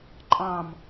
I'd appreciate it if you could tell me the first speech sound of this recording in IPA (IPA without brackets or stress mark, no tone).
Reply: ǃʼ